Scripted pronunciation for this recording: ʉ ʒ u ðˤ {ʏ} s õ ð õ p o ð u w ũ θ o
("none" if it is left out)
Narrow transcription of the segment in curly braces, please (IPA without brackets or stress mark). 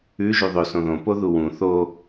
ʏ